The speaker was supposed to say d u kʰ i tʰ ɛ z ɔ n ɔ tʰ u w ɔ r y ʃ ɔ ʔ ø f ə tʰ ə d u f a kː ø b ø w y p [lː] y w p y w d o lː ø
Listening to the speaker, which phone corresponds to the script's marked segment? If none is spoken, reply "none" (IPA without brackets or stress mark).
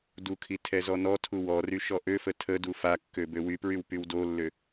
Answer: ɹ